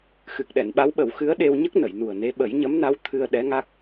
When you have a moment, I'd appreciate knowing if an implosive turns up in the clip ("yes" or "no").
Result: yes